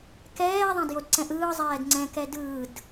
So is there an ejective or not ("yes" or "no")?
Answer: no